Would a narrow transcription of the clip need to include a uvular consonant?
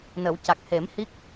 no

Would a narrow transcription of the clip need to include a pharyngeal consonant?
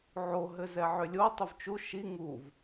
yes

